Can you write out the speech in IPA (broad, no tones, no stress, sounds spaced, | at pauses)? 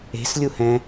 e̤ s lʲ u h ɛ̃